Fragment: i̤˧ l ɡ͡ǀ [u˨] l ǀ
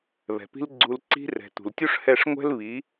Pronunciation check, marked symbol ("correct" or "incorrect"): correct